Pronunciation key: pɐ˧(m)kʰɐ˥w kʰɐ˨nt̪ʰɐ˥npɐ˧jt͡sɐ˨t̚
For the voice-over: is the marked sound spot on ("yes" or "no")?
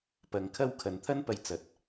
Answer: no